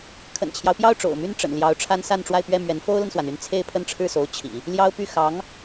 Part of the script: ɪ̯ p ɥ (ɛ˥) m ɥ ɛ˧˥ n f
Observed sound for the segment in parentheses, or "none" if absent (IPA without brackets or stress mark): ɛ˥˩